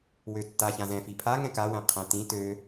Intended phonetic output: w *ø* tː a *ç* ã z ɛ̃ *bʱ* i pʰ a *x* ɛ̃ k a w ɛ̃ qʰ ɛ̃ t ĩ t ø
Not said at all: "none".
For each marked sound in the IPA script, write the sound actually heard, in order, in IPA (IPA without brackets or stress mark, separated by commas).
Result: ø, ç, f, ŋ